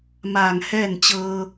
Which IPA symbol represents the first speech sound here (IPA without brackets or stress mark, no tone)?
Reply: m